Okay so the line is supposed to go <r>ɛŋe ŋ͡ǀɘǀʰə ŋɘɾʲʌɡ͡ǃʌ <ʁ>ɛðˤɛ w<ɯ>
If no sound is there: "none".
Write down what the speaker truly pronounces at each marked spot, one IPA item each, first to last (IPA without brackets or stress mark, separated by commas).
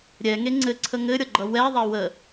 ɾʲ, w, ə